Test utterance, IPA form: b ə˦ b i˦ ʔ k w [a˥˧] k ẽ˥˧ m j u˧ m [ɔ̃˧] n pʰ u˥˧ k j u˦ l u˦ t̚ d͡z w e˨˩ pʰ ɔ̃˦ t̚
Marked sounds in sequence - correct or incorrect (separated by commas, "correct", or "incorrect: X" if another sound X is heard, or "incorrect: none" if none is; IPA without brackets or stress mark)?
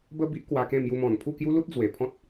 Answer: incorrect: a˧, incorrect: ɔ̃˨˩